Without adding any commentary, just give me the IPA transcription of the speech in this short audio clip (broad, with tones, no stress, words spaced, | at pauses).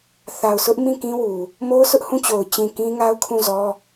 θa˨ʊ̯sʊ˦ʔ mĩ˦˨kĩ˦wu˨ | mo˦ʊ̯sʊ˦ʔhũ˦˨t͡ɕo˨ʊ̯ t͡ɕĩ˨ kĩ˦ŋa˦ʊ̯kʰũ˦˨zɔ˦